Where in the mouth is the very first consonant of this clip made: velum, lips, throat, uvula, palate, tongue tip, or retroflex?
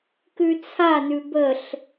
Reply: velum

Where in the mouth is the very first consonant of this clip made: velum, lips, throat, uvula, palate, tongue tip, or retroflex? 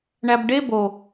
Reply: retroflex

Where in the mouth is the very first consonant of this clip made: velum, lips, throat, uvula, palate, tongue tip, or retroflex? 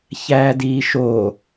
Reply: palate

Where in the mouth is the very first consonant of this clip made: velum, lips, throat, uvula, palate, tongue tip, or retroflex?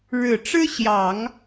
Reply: retroflex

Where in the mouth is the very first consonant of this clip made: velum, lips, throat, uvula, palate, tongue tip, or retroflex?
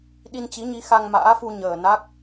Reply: tongue tip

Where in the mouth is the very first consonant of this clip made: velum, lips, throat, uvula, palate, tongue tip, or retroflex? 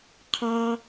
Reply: uvula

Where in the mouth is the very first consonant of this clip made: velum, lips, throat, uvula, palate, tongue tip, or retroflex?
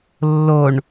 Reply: tongue tip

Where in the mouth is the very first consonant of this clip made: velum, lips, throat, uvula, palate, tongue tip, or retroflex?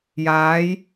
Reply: palate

